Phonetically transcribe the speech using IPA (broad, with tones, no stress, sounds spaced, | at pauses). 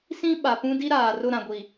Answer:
s ĩ˦ ɓ a˨ p ũ˦ d i˦ ɾ aː˨ r ʊ˦˨ ɾ ã˨ ɡʷ i˨